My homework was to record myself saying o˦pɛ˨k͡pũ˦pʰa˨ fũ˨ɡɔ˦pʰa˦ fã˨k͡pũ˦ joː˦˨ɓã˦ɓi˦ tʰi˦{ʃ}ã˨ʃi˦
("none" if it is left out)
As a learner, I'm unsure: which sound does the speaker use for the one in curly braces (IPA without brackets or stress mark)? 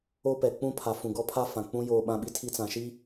t͡s